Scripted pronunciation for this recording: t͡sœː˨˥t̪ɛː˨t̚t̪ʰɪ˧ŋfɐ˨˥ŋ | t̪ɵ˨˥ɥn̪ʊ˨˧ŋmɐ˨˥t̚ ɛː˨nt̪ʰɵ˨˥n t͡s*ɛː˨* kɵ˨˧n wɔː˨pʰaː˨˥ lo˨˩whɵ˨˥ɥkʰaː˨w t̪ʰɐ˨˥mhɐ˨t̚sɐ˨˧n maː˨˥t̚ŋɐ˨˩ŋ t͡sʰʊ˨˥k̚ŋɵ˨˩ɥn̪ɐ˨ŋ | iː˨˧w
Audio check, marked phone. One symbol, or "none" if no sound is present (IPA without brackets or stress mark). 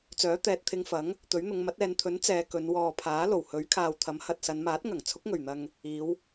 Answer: ɛː˨˧